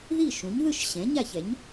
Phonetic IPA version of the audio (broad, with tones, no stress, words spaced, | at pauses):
ði˥˩ʃũ˩˥ɲ ðɯ˥˩ʃ ɕɛ̃˩˥ɲa˥˩çɛ˩˥ɲ